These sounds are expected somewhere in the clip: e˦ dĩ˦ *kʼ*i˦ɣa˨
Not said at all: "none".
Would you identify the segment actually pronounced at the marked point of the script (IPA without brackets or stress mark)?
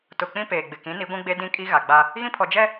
kʼ